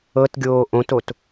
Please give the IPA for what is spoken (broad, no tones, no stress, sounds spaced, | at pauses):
ɤ t ɡʲ oː ʔ õ t o t